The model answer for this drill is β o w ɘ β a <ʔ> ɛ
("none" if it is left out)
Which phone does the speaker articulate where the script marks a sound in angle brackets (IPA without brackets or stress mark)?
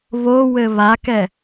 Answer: k